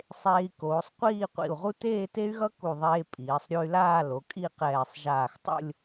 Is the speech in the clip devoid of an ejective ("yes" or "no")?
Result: no